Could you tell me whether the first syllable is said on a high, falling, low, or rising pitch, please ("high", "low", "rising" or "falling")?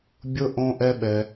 high